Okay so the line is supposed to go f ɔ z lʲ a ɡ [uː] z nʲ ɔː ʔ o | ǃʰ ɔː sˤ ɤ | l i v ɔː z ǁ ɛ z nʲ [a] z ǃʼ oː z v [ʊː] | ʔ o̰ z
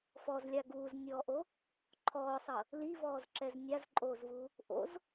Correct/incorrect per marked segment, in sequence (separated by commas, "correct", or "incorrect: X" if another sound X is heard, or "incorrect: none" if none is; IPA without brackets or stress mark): correct, correct, incorrect: uː